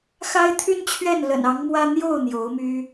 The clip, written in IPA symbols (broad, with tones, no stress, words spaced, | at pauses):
xa˥ɪ̯t̪ʰy˥nt͡ɕʰɥɛ˥˩n lə̰˨˩nɑ˧˥ŋmwä˥ n̪jo˥˩ʊ̯ n̪jo˧˥ʊ̯my˥